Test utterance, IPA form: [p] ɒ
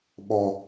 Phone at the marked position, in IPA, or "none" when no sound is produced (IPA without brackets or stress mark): ɓ